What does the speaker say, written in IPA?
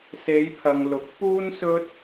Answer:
se˨˧jpʰɐ˨ŋ lʊ˨˥k̚ puː˥nsɵ˥t̚

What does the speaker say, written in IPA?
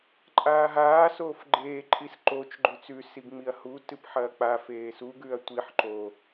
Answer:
ǃʼaːɦaː soːfɡ͡ǃeː ǃʼisǃot͡ʃ ɡ͡ǃʉt͡sʉ siɡŋ͡miɐ̯hu tɨpħɐːk͡pa feːsu ɡʉɐ̯tʷiħ ǃo

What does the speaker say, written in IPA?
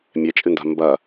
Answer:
mʲɛt͡ʃʼɨnda̤ mbɐ

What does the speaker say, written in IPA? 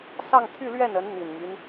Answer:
sɑ˥˧ŋt̪ʰy˥˧lɥɛ˥˩nə˧˥n n̪i˨˩nmy˦n

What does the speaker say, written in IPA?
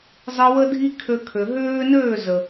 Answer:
zˤɨ˧ wə˦dʱi˦kʰø˧kʰø˨ ɦøː˦nøː˦˨zə˨

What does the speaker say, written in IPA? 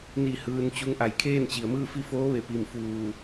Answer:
ni˥˨ hɯː˧nt͡ɕu˧˥ŋʔa˧˩j kʰeː˥˨nt͡ɕi˩ə̯mɯː˥˨fi˥˨ foː˧˥ʋe˧˩pi˧˩m fuː˧˩

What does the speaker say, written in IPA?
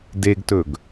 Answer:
deɡtɵɡ

